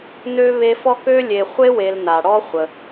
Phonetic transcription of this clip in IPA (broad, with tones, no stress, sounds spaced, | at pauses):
n ø˥ β e˦ f ɔ˥ k ø˥ lʲ e˨ χʷ e˥ w e˨ l n a˩ ɽ ɔ˦ χʷ ə˩